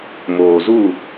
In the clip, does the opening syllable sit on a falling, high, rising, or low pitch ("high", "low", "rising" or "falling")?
low